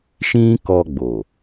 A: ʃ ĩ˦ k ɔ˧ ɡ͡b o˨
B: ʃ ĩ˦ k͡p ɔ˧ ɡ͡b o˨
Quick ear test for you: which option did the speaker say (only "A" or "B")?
A